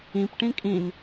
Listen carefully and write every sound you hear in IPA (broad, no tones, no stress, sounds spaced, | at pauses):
ĩ p ʈ ĩ kʼ ĩ n